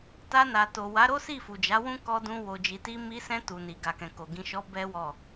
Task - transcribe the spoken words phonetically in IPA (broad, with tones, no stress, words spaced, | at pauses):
ta˧na˨to˨ wa˨˦ɾo˦ si˦˨fu˨d͡ʒa˨˦ wũ˦ kɔ˧dũ˧ wo˨d͡ʒi˨ti˧ mi˧sɛ̃˧ tu˨ni˨ ɡa˨kɛ̃˨ko˨ ɡĩ˨ʃɔ˨˦ bɛ˦wɔ˦˨